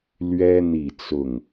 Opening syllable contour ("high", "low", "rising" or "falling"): high